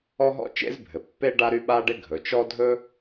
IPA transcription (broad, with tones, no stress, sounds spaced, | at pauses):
ɔ˥ ɦ ɔ̰˥ t͡ʃ ḛ˥ z bʱ ɘ˩ pː e˥ ɖ a˥ ɾ y˥ ɓ a˥ ɖ ɪ˥ ɡʱ ɵ˩ t͡ʃ ɔ˥ dʱ ɵ˥